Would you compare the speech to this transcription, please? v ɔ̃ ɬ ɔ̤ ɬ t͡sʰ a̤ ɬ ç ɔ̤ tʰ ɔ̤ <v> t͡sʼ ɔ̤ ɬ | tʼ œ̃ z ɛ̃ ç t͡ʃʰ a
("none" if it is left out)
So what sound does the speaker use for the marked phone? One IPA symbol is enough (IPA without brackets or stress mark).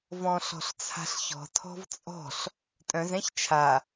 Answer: v